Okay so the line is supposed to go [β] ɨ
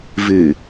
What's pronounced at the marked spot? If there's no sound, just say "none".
v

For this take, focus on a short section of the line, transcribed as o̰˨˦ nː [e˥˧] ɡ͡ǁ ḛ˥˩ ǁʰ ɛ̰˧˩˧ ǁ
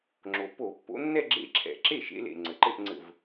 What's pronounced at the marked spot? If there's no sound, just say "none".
ɛ˥˧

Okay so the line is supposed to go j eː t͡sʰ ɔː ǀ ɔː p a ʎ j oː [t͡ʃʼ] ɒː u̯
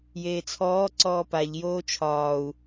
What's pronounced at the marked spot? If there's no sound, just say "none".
t͡ʃʰ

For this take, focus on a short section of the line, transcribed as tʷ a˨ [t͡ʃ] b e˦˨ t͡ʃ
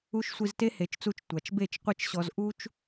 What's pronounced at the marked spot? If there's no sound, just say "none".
t͡ʃ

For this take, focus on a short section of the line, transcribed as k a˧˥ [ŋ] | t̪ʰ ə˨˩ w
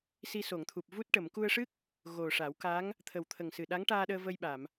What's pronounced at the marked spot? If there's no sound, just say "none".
ŋ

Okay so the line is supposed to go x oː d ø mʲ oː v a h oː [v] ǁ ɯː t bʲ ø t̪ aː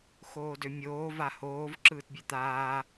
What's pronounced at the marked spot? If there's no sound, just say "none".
v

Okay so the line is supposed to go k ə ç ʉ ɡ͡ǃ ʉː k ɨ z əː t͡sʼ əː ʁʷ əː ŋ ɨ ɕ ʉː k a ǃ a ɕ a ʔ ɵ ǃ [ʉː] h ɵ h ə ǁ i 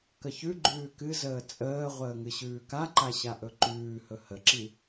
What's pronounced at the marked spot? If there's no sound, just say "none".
ʉː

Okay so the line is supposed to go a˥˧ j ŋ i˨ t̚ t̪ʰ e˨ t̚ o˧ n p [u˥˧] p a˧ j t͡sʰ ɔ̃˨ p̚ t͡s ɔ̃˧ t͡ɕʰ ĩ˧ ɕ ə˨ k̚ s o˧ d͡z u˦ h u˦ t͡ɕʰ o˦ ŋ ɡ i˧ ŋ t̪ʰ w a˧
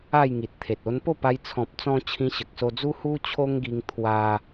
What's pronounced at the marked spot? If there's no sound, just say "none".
o˥˧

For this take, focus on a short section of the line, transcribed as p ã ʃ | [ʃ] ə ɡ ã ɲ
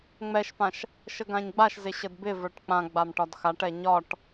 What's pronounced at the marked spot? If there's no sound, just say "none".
ʃ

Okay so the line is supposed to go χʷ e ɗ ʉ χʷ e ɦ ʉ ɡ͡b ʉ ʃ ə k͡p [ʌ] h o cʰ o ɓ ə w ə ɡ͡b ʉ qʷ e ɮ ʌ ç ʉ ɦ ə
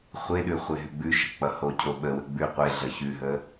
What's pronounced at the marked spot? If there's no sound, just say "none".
ʌ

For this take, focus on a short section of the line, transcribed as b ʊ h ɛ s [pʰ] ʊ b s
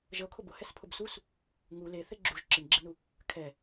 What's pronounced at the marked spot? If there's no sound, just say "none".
pʰ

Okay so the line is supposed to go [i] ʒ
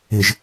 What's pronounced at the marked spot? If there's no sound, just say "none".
ɪ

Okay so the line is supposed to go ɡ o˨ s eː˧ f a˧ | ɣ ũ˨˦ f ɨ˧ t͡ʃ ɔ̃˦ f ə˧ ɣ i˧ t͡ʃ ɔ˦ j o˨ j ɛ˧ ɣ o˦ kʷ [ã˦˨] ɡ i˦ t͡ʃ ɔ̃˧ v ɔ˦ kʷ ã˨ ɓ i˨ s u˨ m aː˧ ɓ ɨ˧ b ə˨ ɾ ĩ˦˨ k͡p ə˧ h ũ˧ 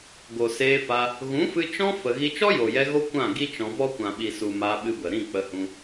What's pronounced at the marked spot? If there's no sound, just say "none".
ã˦˨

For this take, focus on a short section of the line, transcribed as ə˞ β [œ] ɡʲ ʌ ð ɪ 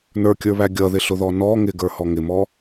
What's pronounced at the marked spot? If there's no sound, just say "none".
æ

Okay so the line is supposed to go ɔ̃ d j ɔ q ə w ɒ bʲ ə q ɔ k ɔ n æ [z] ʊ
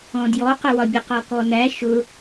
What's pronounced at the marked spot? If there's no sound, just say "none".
ʃ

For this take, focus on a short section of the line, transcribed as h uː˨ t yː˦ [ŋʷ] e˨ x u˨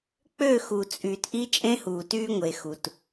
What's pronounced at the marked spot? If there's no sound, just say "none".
ŋʷ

